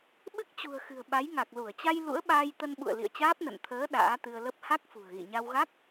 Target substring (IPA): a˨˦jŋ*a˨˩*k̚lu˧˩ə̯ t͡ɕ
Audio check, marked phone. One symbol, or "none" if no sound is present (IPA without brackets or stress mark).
a˨˩